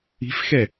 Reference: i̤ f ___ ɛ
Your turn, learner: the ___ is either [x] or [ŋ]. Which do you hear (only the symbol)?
x